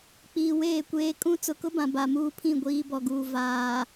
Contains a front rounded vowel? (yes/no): no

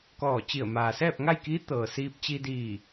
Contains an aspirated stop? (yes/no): no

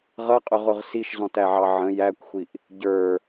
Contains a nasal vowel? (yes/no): yes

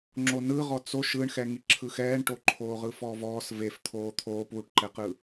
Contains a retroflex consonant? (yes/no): yes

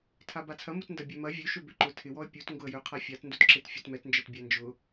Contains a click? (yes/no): yes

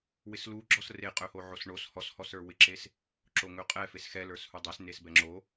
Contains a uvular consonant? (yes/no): yes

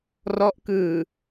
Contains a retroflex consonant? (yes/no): no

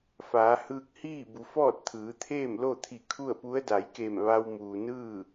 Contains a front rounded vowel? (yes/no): no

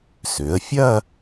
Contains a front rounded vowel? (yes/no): yes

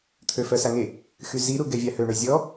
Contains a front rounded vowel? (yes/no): yes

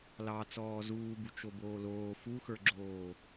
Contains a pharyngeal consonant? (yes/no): no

